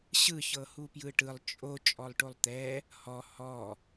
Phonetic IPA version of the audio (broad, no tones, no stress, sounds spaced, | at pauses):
ɕ ɯ ç ɤ h u p j ɯ ʈ ɯ lˠ t͡ʃʼ o t͡ʃʼ ɔ lˠ ʈ o lˠ t̪ ɛ | h ɔ h ɔ